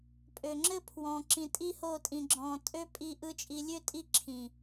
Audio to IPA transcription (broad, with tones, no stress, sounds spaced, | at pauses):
pʼ ø˨ ŋ͡ǁ ɘ˦ pʰ w ɔ̃˨ ǁ ĩ˨ tʼ i˦ h o˦˨ tʼ ĩ˨ ɡ͡ǁ ɔ̃˨ tʼ ø˦ pʼ i˦ ʔ ɯ˦ t͡ʃʼ i˨ lʲ ø˦˨ tʼ i˦˨ ǁʰ ĩ˨